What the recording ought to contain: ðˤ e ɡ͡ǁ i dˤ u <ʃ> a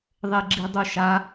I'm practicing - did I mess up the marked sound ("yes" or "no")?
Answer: no